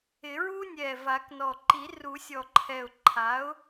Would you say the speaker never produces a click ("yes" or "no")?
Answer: no